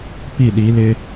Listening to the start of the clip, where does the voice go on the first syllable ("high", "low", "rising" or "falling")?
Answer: falling